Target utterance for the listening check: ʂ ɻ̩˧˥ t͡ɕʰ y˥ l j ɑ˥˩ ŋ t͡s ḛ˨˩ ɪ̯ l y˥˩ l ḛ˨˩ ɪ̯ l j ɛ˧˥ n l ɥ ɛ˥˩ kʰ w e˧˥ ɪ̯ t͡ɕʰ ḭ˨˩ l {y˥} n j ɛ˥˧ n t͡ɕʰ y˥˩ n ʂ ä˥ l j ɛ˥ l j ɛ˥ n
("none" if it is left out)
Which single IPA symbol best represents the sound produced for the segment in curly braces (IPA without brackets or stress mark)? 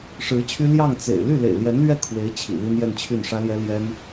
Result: i˥